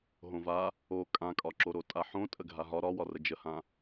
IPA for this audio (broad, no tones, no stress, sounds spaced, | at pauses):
ɦ õ v a | o kʼ ã kʼ ɒ ǁ o ɾ o tʼ a ħ õ tʼ ə ɡʱ a ɦ ɒ ɾ ɒ w ɒ r ə d͡ʒ ə h ã